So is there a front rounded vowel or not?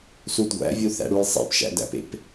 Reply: no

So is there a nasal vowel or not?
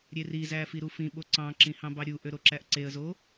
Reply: yes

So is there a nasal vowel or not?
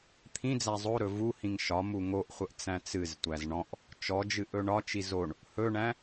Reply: yes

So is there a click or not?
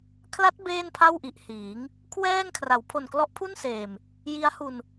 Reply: no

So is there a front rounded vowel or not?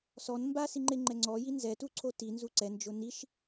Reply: no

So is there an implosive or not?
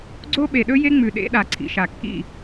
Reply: yes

